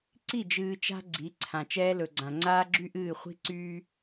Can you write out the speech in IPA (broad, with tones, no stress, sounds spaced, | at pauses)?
ǀ i˦˨ d͡ʒ ɨː˨ t͡ʃ a̤˦ ɡ͡ǀ i˨˦ ǀʰ ã˨ t͡ʃ ɛː˦ l ɵ˨ ɡ͡ǀ ã˨ ŋ͡ǀ aː˦ ɡ͡ǁ y˦ ʔ ɨː˦˨ χʷ i̤˦ ǀ yː˦